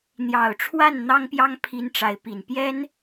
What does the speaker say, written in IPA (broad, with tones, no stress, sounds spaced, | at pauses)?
n̪ j ɑ˨˩ ʊ̯ ʈ͡ʂʰ w a˥˩ n n̪ ɑ˥ ŋ p j ɑ˥ ŋ pʰ i˥ n ʈ͡ʂ a˧˥ ɪ̯ p i˨˩ n p j ɛ˥ n